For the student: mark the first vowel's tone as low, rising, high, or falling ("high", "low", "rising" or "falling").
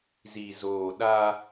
low